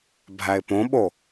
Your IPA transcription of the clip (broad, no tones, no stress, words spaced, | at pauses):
bʱæɪ̯põɓo